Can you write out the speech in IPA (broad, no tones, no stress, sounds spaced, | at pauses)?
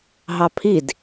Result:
ɦ ɑ pʰ i d